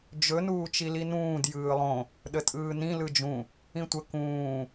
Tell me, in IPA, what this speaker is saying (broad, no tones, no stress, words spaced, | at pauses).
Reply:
d͡ʒɵ nuːt͡ʃilinũːd jɯːlˠõ | ɗətʼɯːnĩ lɯd͡ʒũ | ĩtʷə kũː